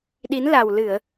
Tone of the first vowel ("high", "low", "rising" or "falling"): rising